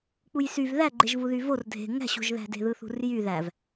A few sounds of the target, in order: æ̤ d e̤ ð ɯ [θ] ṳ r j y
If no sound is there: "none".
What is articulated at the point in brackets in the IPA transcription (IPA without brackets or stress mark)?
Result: θ